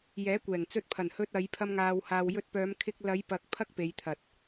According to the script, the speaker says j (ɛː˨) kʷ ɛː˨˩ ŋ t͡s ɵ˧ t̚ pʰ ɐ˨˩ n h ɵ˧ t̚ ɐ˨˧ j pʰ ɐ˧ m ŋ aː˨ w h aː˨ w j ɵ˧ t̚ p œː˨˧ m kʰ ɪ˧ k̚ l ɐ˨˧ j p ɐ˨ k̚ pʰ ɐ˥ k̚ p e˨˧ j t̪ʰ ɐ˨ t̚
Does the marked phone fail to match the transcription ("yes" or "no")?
yes